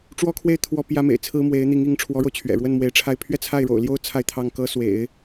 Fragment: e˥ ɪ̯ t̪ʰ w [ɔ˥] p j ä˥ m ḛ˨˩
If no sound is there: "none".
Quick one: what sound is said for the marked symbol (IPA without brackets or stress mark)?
ɔ˥